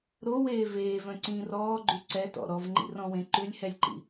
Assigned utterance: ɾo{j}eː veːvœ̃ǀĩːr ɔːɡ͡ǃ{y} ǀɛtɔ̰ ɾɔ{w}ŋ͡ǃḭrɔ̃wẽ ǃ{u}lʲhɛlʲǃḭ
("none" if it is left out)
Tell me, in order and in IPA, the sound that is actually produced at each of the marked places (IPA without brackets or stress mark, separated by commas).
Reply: w, y, v, ʉ